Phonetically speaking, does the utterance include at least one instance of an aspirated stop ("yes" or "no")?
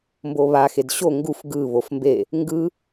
no